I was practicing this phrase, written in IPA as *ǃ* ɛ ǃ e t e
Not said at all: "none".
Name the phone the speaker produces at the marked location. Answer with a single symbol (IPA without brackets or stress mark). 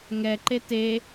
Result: ŋ